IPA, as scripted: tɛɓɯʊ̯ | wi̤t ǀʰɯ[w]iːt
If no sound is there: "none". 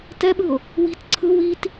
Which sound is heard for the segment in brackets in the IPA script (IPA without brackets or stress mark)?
w